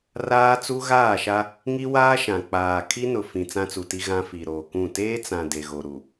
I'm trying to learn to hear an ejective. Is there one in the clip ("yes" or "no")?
no